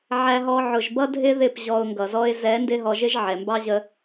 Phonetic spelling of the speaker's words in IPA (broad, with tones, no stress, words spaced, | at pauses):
ʕæ˧ɦɔ˧ ʕʊ˨ʒbʌ˧dʱɪ˧ ðɪ˦˨pʑɔ˧ʊ̯ŋɡʌ˨zɔ˦ɪ̯ zɛ˨˦ ndɪ˦ɦɔ˧ʒɪ˦ʒ ʕɛ˨mbɑ˦ʑə˧